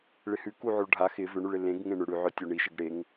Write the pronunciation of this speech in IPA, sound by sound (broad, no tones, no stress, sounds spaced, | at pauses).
ɭ ɪ h ʉ k u ʕ o ɭ ɖʱ a x ɪ v ʏ ɳ ʉ ɭ ɪ l ẽ ɡ ŋ ẽ ɳ ʏ ɽ ʉ ʕ œ tʲ o ɳ i ʃ ɪ ɡ ɽ e ŋ